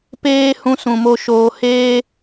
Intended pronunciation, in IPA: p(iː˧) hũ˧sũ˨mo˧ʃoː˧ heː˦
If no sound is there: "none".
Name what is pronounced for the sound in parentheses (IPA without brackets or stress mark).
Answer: eː˧